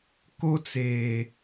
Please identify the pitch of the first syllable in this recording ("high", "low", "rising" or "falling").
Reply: high